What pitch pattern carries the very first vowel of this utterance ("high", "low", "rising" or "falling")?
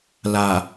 low